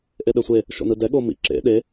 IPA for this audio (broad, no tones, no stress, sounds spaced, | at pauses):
ʔ e ɗ ɛ sʷ e | ʃ o̰ n ɯ d ɛ ɠ o m ḭ ǁ ḛ ɗ e